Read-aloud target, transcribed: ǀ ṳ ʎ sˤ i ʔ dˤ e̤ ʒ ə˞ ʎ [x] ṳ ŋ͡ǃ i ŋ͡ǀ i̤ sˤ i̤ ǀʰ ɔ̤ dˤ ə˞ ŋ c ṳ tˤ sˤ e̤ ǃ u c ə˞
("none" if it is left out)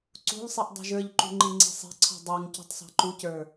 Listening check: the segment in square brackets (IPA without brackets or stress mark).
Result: ǃ